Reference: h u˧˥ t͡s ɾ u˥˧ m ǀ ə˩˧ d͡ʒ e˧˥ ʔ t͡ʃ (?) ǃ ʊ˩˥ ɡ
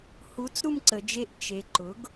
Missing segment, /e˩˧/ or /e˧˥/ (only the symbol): e˩˧